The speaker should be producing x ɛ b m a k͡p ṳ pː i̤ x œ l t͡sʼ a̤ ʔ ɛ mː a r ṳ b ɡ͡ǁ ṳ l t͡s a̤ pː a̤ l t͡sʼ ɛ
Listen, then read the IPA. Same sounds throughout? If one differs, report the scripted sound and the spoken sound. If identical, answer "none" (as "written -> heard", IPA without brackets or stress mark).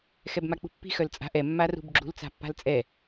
none